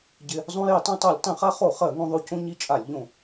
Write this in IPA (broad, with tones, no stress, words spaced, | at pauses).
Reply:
ɟɪ˧ | zˤõ˧je˧˩˧tˤõ˧tˤo˧˩˧lʲ tˤẽ˧˩˧χa˧χo˧˩˧ χɜ˧˩˧ŋõ˧ðˤo˧ cõ˧ ɲi˧t͡ʃʼa˧˩˧lʲʎõ˧˩˧